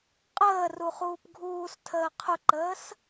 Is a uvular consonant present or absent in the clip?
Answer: present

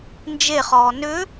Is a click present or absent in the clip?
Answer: absent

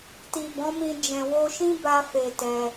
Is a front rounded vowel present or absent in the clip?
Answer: absent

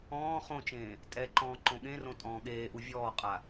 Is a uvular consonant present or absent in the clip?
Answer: present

